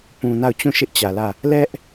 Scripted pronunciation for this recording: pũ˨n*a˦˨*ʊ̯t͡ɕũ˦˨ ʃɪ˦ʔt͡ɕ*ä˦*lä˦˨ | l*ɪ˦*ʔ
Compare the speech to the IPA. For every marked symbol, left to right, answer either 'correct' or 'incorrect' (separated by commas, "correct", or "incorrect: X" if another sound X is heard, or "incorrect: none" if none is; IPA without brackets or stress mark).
correct, incorrect: ä˨, incorrect: ɛ˦